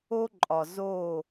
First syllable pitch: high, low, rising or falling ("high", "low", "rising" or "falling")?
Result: high